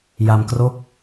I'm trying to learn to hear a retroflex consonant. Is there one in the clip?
no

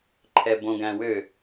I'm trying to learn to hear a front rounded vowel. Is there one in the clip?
yes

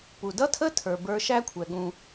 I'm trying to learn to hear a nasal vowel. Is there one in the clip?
yes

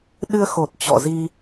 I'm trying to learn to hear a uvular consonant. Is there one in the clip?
no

